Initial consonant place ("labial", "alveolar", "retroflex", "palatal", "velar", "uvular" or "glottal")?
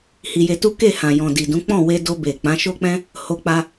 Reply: glottal